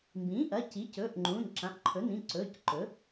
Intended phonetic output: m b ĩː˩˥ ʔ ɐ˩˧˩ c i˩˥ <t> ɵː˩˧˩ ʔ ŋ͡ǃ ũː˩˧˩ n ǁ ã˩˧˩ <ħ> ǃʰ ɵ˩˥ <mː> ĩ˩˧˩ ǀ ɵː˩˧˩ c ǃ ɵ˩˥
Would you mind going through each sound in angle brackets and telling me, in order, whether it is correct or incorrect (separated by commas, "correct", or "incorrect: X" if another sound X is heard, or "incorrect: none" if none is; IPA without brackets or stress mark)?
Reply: incorrect: c, incorrect: ʔ, incorrect: n